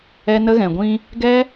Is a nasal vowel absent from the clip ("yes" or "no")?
no